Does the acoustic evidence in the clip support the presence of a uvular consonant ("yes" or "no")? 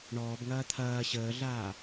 no